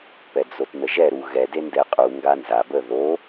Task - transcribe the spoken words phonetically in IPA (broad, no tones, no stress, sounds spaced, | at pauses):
p ɛ d͡z o t n ə ʒ ɛ ɾ u ɣ ɛ d e n d ɛ qʼ u ŋ ɡ a n z a b ə ð o